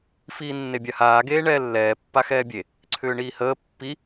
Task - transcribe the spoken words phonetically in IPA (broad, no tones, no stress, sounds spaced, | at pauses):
f iː nː e bʲ a h aː ɡ eː ɳ ɛː lː ɛː pː a x ɛː bʲ e | ǀʰ ʏː ɳ iː h əː pː i